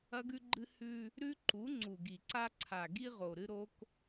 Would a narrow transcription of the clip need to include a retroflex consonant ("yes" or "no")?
no